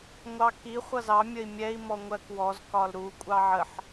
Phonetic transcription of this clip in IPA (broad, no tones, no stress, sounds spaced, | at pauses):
ŋʷ ɑ k i χʷ ʌ z ɑ mʲ ə i̯ mʲ ɛ i̯ m ɔ ŋʷ ɜ k w ɔ z k ɒ l ɾ u kʷʼ ɑ ʕ ə ħ